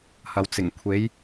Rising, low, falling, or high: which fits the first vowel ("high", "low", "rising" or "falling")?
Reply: low